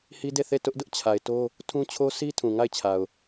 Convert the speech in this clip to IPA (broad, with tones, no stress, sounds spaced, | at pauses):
h i˦ d e˦˨ θ e˦˨ t ʊ˦ ʔ d ʊ˦ ʔ t͡ɕʰ a˨ ɪ̯ t o˦ | tʰ ũ˦ t͡ɕʰ o˦ sʰ i˦ tʰ ũ˨ ŋ a˦˨ ɪ̯ t͡ɕʰ a˨ ʊ̯